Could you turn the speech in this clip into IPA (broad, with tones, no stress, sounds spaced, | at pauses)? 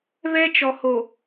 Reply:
β ɛ˦ t͡ʃ ɔ˨ h o˨